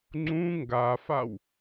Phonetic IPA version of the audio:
ŋ͡ǀ ũ ŋ ɡ a f a w

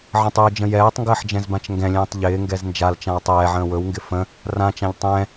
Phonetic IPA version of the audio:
ʕ ə̃ tˤ əː d͡ʒ ə̃ j ɛː tˤ ŋ ɡ əː ħ d͡ʒ ɛ̃ z b ã t͡ʃ ŋ ɡ ɛ̃ lʲ ɛ̃ː tˤ ʎ ɪː ŋ ɡ ɛ z n d͡ʒ a l t͡ʃ ã w tˤ ɛː ʕ ə̃ː w ɵ w ŋ ɡ ɪ f ə̃ | r ã t͡ʃ ã ʎ tˤ ɛ̃

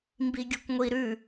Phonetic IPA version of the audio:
m b i ɡʲ o kʷ ŋʷ i ɾ ʉ

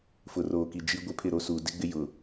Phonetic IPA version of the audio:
f ʊ˨ r oː˨ k i˨ d͡ʒ i˦ ɡʷ ɪ˦ pʰ ɪ˦˨ ɾ o˦ s uː˨ d ɪ˦ ɡ͡b ɪ˦ j ʊ˨

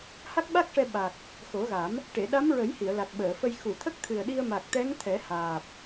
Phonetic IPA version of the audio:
h a˦˥ k̚ ɓ a˦˥ k̚ ʂ ɛ˧ ɓ a˨˩ k̚ | x o˨˩˦ ɣ a˨˩˦ m | ʈ e˨˩˨ ɗ a˧˥ m ɹ ə˨˩˦ j h i˨˩˨ ə̯ l a˨˩ k̚ ɓ əː˨˩˨ f ə˧ j x u˨˩˨ t̪ʰ ə˦˥ k̚ t̪ʰ ɨ˨˩ ə̯ ɗ i˧ ə̯ m a˨˩ k̚ t̪ ɛ˧˥ ŋ t̪ʰ ɛ˨˩˦ h aː˨˩ p̚

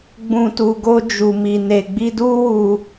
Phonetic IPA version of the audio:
ɡ͡b ũ˨ t u˨ ɡ o˧ d͡ʒ u˨ m i˨ n e˨ ɡ͡b i˧ d u˦ w u˧

